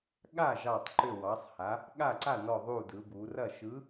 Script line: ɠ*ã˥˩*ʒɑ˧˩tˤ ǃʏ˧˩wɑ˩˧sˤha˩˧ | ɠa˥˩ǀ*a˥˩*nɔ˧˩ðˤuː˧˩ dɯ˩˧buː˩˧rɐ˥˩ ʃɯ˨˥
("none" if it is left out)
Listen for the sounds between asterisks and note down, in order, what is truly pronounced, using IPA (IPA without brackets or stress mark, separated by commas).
a˥˩, a˥˩